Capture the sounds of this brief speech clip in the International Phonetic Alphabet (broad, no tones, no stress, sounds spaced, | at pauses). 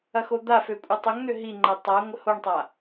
ɐ x o d̪ a f ø kʷʼ ɛ tˤ ʊ ŋ n̪ ø ɦ i ŋ͡ǃ ɛ tˤ a ŋʷ ə h o ɳ tˤ a